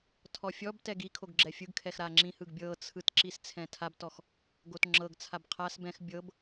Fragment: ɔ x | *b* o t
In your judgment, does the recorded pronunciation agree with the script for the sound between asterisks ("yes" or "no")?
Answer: no